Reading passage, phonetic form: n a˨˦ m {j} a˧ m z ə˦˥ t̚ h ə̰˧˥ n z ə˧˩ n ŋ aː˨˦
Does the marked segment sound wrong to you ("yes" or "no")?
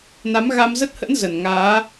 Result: yes